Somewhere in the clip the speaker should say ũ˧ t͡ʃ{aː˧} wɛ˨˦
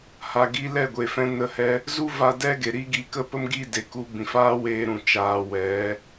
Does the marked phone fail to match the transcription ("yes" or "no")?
no